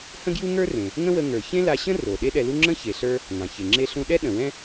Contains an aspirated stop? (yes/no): no